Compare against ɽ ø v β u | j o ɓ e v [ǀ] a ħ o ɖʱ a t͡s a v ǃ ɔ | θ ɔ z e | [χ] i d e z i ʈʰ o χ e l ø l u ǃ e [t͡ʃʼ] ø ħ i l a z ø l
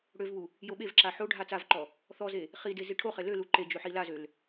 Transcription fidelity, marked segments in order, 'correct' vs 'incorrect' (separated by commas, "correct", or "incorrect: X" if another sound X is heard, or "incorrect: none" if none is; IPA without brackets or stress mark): incorrect: ǁ, correct, incorrect: d͡ʒ